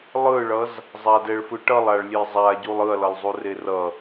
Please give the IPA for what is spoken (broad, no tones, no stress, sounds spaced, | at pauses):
lˠ ɯ ɭ ʌ z | zˤ a d ɛ ɭ f ɯ ʈ ʌ lˠ a ɭ lʲ e zˤ a ɟ u lˠ ɯ ɐ̯ l ʌ lˠ zˤ u r e r ʌ